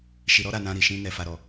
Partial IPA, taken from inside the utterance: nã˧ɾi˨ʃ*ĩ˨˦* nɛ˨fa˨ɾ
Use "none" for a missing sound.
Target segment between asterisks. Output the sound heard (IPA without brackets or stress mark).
ĩ˧